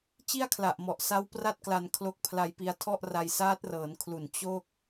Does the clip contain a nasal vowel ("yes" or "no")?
no